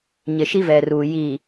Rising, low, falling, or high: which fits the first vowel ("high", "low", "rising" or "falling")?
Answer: low